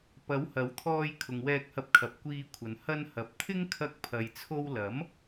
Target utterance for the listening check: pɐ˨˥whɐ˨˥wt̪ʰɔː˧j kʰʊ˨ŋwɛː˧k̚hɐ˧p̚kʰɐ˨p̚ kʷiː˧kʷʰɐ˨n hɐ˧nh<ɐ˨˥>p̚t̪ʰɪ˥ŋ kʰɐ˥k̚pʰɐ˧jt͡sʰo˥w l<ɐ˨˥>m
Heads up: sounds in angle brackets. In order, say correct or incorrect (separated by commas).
correct, correct